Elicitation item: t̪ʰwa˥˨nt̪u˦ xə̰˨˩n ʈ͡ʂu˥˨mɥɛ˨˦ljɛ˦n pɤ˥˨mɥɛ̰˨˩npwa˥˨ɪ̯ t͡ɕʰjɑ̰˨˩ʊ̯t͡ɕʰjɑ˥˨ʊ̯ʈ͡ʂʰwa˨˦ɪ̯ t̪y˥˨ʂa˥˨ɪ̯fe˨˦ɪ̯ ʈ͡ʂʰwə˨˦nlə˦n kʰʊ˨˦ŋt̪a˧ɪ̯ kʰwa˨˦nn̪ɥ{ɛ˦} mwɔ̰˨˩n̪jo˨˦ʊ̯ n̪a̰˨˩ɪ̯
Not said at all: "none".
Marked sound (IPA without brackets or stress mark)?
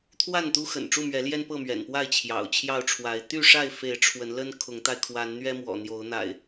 ɛ˦